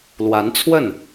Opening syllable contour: rising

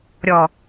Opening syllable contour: low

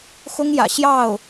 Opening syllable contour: high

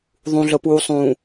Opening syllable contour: low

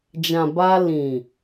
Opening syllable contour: low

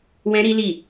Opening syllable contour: high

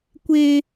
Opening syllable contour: high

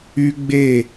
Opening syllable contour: high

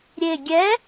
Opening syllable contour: low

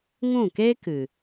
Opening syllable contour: falling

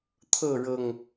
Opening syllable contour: falling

